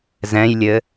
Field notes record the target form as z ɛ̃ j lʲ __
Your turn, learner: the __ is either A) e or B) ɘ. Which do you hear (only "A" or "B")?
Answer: B